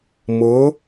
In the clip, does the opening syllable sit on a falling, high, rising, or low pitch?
rising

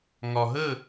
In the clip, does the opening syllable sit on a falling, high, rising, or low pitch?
low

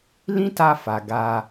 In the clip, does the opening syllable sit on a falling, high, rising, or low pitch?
high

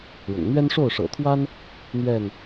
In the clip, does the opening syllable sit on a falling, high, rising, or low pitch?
low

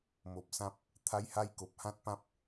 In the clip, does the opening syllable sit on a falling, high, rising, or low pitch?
low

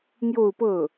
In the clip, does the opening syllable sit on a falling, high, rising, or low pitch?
falling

